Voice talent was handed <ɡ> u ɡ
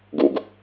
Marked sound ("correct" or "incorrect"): correct